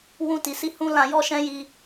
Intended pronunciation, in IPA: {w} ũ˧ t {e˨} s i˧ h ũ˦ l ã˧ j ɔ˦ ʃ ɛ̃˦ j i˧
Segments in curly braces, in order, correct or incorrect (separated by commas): correct, incorrect